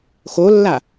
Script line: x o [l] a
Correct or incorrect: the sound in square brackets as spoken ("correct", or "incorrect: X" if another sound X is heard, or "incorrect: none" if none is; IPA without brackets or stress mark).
incorrect: lː